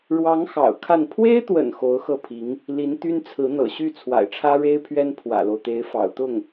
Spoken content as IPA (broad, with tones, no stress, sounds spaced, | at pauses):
ɻ w ɑ˧˥ ŋ x ɑ̰˨˩ ʊ̯ kʰ a˥˩ n pʰ w e˥ ɪ̯ t̪ w ə̰˨˩ n x o˧˥ ʊ̯ x ɤ˥˩ pʰ i˧˥ ŋ | l i˧˥ n t̪ y˥ n t͡sʰ ɹ̩˧˥ n̪ ɤ̰˨˩ ɕ y˥˩ t͡sʰ w a̰˨˩ ɪ̯ ʈ͡ʂʰ ä˥ ɻ e˥ ɪ̯ pʰ ɥ ɛ˥ n pʰ w ä̰˨˩ l o˦ ʊ̯ t̪ e˧˥ ɪ̯ f ɑ̰˨˩ ʊ̯ t̪ ʊ˥˩ ŋ